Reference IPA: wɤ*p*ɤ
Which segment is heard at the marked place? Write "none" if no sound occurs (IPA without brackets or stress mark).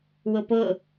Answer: p